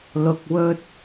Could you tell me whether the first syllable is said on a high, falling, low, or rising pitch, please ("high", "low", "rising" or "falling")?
low